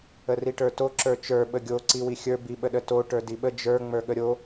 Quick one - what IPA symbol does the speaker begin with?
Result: ə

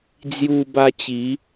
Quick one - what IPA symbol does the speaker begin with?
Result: d͡z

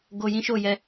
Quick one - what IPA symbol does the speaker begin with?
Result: ɡ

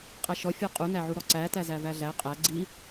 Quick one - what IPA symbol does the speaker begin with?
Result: qʼ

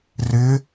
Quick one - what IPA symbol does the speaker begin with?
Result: r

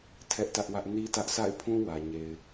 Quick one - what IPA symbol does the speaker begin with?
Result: tʰ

